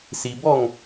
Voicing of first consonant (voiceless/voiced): voiceless